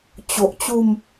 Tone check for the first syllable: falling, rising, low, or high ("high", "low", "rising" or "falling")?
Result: low